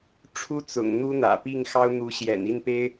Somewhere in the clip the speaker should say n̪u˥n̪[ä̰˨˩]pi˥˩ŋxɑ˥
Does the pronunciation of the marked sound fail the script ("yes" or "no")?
no